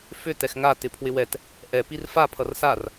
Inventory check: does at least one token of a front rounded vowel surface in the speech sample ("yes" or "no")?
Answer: yes